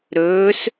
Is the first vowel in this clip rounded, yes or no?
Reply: yes